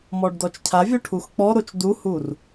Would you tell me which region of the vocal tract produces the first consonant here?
lips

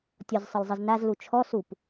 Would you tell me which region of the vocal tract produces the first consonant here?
tongue tip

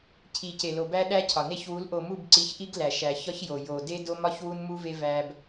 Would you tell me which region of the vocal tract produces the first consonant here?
palate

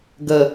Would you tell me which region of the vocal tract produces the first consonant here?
velum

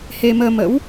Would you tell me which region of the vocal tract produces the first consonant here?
throat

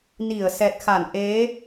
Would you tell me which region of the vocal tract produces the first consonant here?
tongue tip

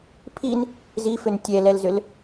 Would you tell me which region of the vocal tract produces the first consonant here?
lips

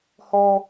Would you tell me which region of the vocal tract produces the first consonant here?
throat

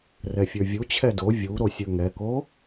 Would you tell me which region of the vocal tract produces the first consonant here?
tongue tip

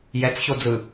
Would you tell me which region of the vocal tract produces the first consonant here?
palate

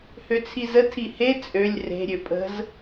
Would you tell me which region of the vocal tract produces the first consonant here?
throat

